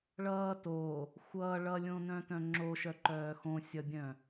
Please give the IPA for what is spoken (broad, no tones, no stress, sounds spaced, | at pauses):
ɭ ʌː t o | xʷ ʌː ɭ ʌ lʲ õ n œ̃ t œ̃ ŋ͡ǁ o ʃ œ ǃ œː x õ sʲ ʌ bʲ œ̃